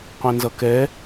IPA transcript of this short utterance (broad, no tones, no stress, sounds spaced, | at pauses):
qʷ ɛ̃ n z ʌ k ɛ